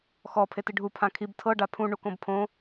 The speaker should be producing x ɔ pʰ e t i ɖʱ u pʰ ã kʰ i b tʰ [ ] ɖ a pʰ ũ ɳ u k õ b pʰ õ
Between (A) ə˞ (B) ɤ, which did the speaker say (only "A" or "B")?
B